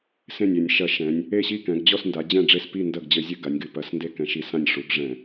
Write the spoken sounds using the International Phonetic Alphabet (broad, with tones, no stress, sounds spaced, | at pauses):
s ẽ˥˩ nʲ e˧˩˧ nʲ ʃ ɐ˧˩˧ ʃ ɛ̃˩˧ nʲ | e˥˩ ɕ i˥˩ k ɛ̃˩˧ ɡ d͡ʑ ɔ˥˩ s n d a˩˧ d͡ʑ ɛ̃˥˩ ɖ͡ʐ e˥˩ s p i˥˩ n d ɐ˥˩ ɡ d͡ʑ ɘ˧˩˧ zʲ ɨ˧˩˧ ɡ a˩˧ nʲ ɡ ɨ˩˧ p ɐ˧˩˧ s n d e˥˩ k ɛ̃˧˩˧ ʃ i˧˩˧ s ã˥˩ nʲ ʂ u˩˧ ɡ ʐ ɛ̃˧˩˧